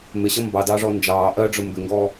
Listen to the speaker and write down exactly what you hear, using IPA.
m ɪ ɕ ʌ m b ɑ d ɑː ʐ ɔ n d͡ʒ ɑː ʔ ɜ ɖ͡ʐ ʊ m b ɪ ŋ ɡ ɔː

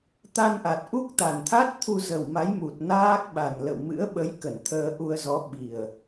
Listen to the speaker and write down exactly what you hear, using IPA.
t̪ a˧ n ʔ a˨˩ t̚ ʔ u˦˥ k̚ t̪ a˨˩ n t̪ʰ a˦˥ t̚ t̪ʰ u˧ z ə˨˩ w m a˨˦ j m u˨˩ t̚ n aː˦˥ k̚ ɓ a˨˩ n l ə̰˧˨ w m ɨ̰˧˥ ə̯ ɓ ə˨˦ j k ə˧˩ n t̪ʰ əː˧ ʔ u˧ ə̯ z ɔ˨˦ ɓ i˨˩ ə̯

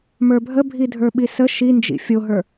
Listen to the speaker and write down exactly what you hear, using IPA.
m ə˞ bʱ ə bʱ i dʱ ə˞ ɓ i s ə ʃ i n d͡ʒ ḭ fʲ o ɦ ə˞

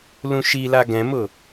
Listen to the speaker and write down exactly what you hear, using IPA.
l ũ ʃ i l a ɡ ɛ̃ m ʊ

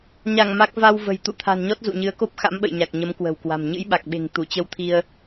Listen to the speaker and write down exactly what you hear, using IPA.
ɲ a˧˩ ŋ m a˦˥ k̚ v a˧ w v ə̤˨˩ j t̪ ṵ˧˨ t̪ʰ a̤˨˩ n ɲ ɔ˦˥ t̚ z ṵ˧˨ ɲ ɨ˨˦ ə̯ k o˦˥ p̚ x a̰˧˥ m ɓ ə̰˧˨ j ɲ a˨˩ k̚ ɲ ə˨˦ m k w ə̤˨˩ w k w a̤˨˩ m ɲ ɨ̰˧˥ j ɓ a˨˩ k̚ ɓ e̤˨˩ ŋ t̪ u˧˩ t͡ɕ ə˧ w t̪ʰ i˧ ə̯

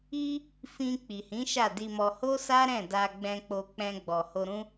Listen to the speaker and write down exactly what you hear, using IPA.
i˧ | f ĩ˧ k͡p i˨ h ĩ˨˦ ʃ a˦˨ d i˧ m ɔ˧ h o˦ s a˦ ɾ ɛ̃˦˨ d a˧ ɡ͡b ɛ̃˧ k͡p o˧ k͡p ɛ̃˧ ɡ͡b ɔ˨ h o˧ ɾ ũ˦

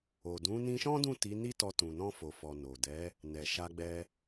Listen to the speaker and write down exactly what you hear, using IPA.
o˨ d ũ˨˦ n ĩ˧ ʃ ɔ̃˦ d ũ˦˨ t i˨˦ n i˦ t ɔ˧ t ũ˨ n ɔ̃˧ f o˨ f ɔ˨ n o˨ d ɛ˨˦ | n ɛ˨ ʃ a˧ ɡ͡b ɛ˧

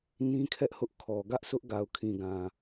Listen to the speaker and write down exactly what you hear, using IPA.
n ĩ˦ kʰ ɛ˦ ʔ h ʊ˦ ʔ kʰ ɔ˨ ɡ ä˦ ʔ sʰ ʊ˦ ʔ ɡ a˨ ʊ̯ kʰ ĩ˨ ɡ ã˨

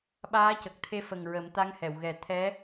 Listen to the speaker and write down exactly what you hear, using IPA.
ɓ aː˧˥ c ə˨˩ k̚ t̪ʰ e˧ f ə˨˩ ŋ ɹ ə˨˩˦ m t̪ a˧˥ ŋ h ɛ˨˩˨ w ɣ ɛ˨˩˦ t̪ʰ ɛ˧˥

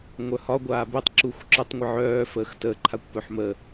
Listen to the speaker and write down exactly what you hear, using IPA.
ŋʷ œ h ɒ ɡʷ aː b ɨ tˤ ǁ u xʷ ǁ ɨ tˤ ŋʷ ə ʕ œː f əː x t əː ǃʰ a kʷ p œ ħ m ə

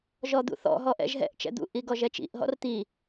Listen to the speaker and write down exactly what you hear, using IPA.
ʒ ɔ d̪ ṵ θ ɔ̰ ɦ ɔ ʔ ɛ̰ ʒ ɦ ɛ̰ ʔ t͡ʃ ɛ̰ d̪ ṵ ʔ i ɡ ɔ ʒ ɛ t͡ʃ ḭ ʔ ɦ ɔ̰ r t̪ i

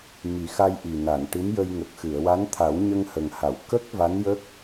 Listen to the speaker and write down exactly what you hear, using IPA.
m i˨˩˦ x a˧ j ʔ i˨˩ n a˨˩˨ n ʈ ɨ˧˥ m j ə˧ j ŋ ə˨˩ k̚ x ɨ˨˩˨ ə̯ w a˧˥ n t̪ʰ a˨˩˦ w ɲ ə˧ ŋ h ə˨˩ ŋ h a˨˩˨ w k ə˦˥ k̚ v a˧˥ n j ə˦˥ k̚

